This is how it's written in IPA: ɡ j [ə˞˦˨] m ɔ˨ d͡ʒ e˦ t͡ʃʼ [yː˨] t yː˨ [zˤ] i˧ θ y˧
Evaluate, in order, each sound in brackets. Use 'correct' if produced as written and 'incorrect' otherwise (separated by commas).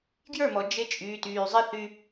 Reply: correct, correct, correct